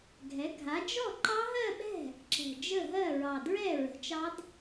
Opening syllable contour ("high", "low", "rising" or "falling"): rising